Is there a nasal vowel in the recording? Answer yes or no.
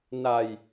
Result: no